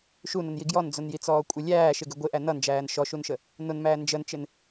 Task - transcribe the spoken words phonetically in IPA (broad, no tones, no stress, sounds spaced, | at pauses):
ʃ u n ʊ n j i ɡ j ɔ n d͡z ʊ n j i t͡s ɔː kʷʼ ɪ lʲ æː ʃ ɪ ɡ ɪ ɡʷ ɪ ʔ æ n ʌ n d͡ʒ æː n ʃ ɔ ʃ u n ʃ ə | n ʊ n m æː n d͡ʒ ə n t͡ʃ ɪ n